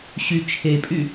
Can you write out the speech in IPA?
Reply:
ɕy t͡ʃʰepʼy

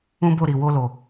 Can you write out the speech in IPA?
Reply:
ũ˦bo˦˨ɾi˨ wo˧lo˨

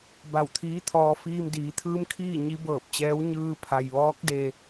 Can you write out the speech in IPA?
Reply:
ba˧˩wt̪ʰiː˧˥t̪ʰɔː˧ fiː˧mdiː˩˧t̪ʰɯː˧˥mkʰiː˥˨ ɲi˧˥bɤː˧˩p̚t͡ɕɛː˧˥w ɲɯː˧pʰa˩jʋɔː˧˥k̚ de˧

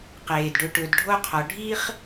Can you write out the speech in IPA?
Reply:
qeː˩dɖɵ˨ʈɵ˨d ɖʱo˥qʰɔ˨ ɖʱi˥χ

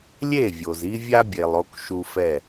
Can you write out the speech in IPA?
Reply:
lʲe˦˨vʲo˨zi˦vʲa˦ bʲe˨lˠo˦k ʃu˦fɛ˦˨

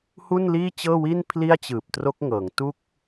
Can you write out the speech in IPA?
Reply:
hu˥˩nliː˥˩t͡ɕɤː˥˩wi˥˩n pʰli˥˩a̯t͡ɕɯː˨˩p̚tro˦˥k̚ ŋɤː˩˦ŋtu˥˩k̚

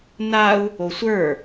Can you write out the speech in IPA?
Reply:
nau̯ | osʷə˞

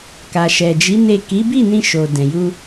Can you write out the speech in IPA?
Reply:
ka˨ʃɛ˨d͡ʒi˨˦ ne˦˨ ki˨˦bi˦˨ nĩ˧ʃo˨ dɛ̃˨ju˧

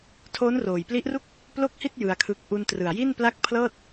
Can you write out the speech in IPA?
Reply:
tʰoː˦˥nroː˨˩jpli˦˥ʔru˥˩k̚ | plo˥˩k̚hi˥˩t̚ jɯ˧a̯kʰɯ˦˥k̚ ʔu˧ntrɯ˨˩a̯ji˥˩n pla˥˩k̚ pʰlɤː˥˩t̚

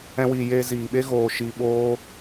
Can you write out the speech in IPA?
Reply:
ɛ̃˧wiː˨ je˧ziː˨ɓe˦ ɣoː˧ʃiː˧ ɓoː˦

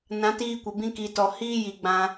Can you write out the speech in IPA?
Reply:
nã˨˦tiː˧kʷə˨bĩ˧ ki˨tɔ˨ hiː˦ji˨ɡ͡bã˧

